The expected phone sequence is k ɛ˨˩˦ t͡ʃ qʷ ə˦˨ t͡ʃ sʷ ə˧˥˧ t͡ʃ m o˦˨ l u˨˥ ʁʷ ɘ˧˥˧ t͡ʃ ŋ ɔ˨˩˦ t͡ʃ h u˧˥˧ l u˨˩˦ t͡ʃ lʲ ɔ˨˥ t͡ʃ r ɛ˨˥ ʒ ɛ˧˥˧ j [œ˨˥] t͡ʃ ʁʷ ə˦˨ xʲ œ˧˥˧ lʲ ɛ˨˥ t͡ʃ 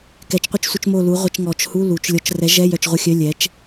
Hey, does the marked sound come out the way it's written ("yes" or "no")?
no